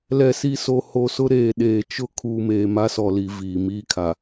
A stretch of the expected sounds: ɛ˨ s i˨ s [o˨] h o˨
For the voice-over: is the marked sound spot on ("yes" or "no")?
yes